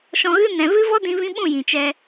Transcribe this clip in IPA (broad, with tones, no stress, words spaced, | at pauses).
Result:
ʃɔ̃˧ɣɨ˦ nɛ̃˨vɨ˦vɔ˦ dĩ˧vĩ˧ɓũ˦˨ jĩ˨t͡ʃɛ˧